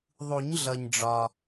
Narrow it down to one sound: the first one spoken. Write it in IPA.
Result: ðˤ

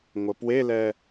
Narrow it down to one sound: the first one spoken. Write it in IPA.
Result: ŋʷ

